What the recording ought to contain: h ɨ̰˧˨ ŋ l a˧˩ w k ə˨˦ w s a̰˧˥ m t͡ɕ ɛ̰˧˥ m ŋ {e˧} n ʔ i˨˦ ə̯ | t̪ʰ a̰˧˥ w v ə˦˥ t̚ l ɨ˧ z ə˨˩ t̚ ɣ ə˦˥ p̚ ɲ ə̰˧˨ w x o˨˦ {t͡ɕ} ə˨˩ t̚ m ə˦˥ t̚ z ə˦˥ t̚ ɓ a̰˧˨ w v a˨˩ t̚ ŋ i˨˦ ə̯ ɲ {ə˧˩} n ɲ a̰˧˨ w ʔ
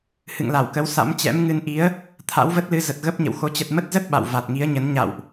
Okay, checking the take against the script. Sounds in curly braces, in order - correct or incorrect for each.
incorrect: ɨ˧, correct, incorrect: ə˨˦

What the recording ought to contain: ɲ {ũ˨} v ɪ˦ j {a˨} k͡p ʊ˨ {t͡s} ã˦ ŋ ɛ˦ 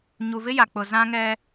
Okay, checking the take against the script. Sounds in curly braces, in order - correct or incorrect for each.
incorrect: u˨, correct, incorrect: z

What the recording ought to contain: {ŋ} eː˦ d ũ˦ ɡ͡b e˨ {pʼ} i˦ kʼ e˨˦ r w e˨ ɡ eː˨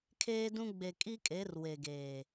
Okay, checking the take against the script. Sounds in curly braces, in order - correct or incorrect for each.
incorrect: kʰ, incorrect: kʼ

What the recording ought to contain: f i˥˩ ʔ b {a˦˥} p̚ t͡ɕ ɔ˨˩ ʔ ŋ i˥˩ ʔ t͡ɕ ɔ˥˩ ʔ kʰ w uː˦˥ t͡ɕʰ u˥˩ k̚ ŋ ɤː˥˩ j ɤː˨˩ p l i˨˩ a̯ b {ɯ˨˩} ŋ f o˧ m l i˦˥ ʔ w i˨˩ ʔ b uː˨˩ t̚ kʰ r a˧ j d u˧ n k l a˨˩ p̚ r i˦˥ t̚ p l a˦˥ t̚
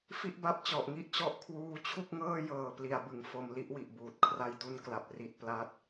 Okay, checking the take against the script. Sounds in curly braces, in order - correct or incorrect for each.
correct, correct

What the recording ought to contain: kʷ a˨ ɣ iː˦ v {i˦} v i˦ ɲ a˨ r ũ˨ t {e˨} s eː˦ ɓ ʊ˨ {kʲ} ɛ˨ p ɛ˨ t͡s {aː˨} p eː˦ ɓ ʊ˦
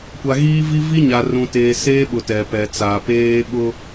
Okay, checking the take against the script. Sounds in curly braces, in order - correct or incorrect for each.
correct, incorrect: eː˨, incorrect: t, correct

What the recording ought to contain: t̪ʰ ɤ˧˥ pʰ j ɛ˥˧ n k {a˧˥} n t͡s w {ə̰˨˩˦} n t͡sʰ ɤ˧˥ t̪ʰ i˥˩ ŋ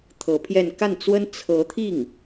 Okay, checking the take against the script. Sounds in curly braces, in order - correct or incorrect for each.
incorrect: a˥˩, incorrect: ə˥

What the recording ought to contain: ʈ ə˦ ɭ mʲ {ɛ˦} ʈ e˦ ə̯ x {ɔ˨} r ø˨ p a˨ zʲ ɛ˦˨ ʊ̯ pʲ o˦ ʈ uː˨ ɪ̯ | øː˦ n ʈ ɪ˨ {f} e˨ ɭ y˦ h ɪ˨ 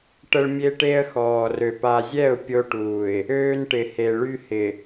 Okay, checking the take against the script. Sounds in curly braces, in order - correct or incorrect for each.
incorrect: e˦, incorrect: ɔː˨, incorrect: h

